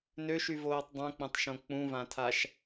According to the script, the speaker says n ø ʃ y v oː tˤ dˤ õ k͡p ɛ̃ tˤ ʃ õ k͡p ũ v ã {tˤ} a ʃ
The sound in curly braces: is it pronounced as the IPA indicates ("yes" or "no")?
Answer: no